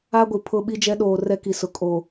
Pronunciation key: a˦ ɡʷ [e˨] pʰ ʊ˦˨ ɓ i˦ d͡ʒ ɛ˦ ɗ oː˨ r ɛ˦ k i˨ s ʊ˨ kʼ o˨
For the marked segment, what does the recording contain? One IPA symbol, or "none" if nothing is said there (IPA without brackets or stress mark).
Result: i˨